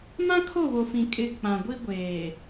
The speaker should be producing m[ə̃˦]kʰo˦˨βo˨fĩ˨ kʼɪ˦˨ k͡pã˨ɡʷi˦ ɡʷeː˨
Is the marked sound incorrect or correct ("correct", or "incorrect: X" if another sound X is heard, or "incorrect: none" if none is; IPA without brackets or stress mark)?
incorrect: ã˦